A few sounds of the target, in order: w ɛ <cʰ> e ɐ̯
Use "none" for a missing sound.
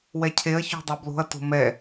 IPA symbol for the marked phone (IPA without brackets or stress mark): cʰ